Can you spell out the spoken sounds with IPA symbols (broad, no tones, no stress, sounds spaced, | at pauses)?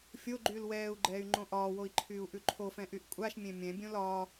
fʲ o ɡ͡ǃ yː l w ɛː u̯ ɡ͡ǃ ɛː y̯ ŋ͡ǃ õ ʔ ɒː w o i̯ ǃʰ yː u̯ ʔ ʉ ǃʰ o f ɛ̃ ʔ y ʔ kʷʼ a ʃ mʲ ẽ mʲ ɛ̃ bʲ õ l ɒː